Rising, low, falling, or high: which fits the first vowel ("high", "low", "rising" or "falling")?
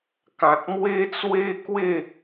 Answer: low